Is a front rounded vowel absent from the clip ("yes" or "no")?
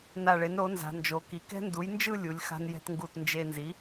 yes